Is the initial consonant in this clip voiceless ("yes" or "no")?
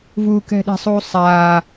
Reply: no